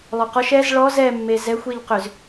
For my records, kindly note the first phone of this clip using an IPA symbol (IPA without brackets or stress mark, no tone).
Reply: lˠ